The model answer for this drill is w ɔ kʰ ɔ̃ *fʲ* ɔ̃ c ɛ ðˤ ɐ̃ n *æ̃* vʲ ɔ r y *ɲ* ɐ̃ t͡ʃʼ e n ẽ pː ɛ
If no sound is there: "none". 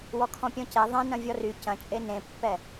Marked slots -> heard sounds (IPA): pʲ, ɐ̃, c

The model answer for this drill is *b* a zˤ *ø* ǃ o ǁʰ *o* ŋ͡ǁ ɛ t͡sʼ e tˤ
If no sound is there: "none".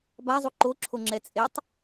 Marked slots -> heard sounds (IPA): b, u, o

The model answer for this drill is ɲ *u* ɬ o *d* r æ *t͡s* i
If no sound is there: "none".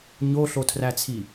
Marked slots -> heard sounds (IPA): o, tʰ, t͡sʰ

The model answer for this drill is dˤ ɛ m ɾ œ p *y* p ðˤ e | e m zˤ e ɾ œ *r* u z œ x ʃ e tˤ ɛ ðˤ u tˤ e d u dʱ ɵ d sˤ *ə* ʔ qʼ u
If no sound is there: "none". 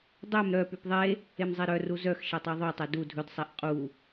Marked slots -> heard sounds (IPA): y, r, ɛ

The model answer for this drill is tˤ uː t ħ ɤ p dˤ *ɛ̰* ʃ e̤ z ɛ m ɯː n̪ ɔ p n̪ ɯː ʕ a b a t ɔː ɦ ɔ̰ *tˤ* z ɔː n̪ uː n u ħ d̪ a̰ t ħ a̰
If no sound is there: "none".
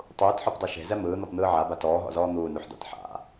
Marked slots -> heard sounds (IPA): ɛ, none

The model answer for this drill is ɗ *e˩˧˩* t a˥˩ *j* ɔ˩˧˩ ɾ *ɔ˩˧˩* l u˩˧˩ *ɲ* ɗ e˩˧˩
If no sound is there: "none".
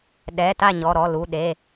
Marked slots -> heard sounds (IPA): ɛ˩˧˩, ɲ, ɔ˩˧˩, none

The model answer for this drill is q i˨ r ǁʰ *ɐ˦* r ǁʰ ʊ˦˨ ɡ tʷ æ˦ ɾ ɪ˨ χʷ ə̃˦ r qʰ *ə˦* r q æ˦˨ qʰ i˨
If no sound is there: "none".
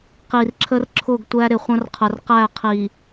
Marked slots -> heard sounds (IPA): ə˦, ə˨

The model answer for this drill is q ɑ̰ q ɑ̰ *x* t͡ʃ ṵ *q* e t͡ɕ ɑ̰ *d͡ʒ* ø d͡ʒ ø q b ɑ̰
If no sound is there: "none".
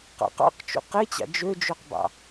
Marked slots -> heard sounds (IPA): q, q, d͡ʒ

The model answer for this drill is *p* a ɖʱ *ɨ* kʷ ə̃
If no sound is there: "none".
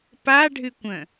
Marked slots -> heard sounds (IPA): p, ɨ

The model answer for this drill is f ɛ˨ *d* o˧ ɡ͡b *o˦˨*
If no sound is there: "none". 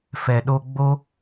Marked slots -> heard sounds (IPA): ɗ, o˦

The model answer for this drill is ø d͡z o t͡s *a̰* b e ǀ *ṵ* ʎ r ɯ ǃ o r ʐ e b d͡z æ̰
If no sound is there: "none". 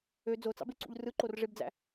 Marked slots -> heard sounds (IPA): ɑ̰, ṵ

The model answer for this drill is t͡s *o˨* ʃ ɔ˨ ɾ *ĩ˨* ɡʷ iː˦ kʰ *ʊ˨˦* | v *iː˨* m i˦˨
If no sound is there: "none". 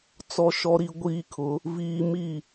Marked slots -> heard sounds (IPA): ɔ˨, i˨, ʊ˨˦, iː˨

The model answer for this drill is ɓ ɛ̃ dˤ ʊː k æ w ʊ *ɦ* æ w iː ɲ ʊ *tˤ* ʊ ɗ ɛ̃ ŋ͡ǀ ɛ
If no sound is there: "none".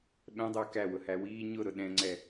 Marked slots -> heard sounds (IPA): h, ɾ

